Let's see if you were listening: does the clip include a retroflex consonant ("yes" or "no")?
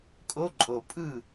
no